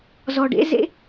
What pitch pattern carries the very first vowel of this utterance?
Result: low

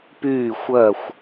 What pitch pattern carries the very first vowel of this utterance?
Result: falling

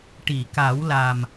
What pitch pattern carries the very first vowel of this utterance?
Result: low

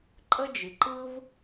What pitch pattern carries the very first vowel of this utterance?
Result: high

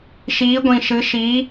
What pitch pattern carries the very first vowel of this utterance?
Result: rising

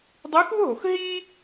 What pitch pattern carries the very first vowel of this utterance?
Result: rising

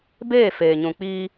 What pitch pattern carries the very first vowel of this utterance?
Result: falling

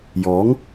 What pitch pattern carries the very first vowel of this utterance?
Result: rising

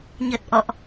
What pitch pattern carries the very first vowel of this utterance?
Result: low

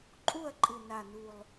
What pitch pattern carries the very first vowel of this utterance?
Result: falling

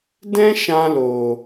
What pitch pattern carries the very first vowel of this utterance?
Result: high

